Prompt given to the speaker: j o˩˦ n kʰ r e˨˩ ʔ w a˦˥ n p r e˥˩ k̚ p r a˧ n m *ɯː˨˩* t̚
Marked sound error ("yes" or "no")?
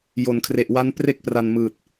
no